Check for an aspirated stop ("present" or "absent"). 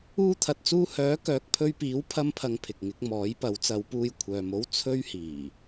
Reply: present